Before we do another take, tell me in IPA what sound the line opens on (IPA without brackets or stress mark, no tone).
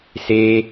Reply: s